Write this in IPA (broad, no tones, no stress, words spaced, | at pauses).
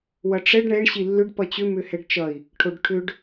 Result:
wʌʈ͡ʂɛɖ ɳɛɳ ɕilːʏɖ pʌt͡ɕʏ mʏhɛɖt͡ʃʌi̯ | ʈʰoɖʈʰʏɖ